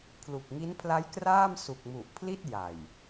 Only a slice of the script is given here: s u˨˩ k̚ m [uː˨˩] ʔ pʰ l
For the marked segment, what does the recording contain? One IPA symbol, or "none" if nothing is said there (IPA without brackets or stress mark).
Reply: u˨˩